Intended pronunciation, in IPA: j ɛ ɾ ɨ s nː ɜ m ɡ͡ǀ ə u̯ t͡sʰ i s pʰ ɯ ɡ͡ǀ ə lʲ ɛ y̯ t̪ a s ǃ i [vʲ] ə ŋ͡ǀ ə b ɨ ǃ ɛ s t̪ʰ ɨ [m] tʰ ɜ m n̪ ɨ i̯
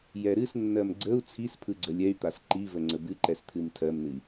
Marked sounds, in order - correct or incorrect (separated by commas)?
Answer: incorrect, correct